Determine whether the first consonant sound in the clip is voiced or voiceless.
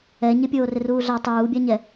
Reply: voiced